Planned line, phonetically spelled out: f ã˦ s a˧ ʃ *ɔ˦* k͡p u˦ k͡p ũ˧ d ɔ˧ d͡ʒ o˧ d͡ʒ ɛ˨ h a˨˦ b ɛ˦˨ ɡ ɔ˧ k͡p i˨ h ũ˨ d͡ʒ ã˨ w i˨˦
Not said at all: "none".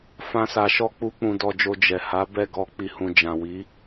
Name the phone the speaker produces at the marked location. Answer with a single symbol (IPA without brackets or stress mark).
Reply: ɔ˦